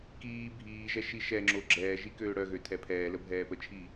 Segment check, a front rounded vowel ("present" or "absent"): present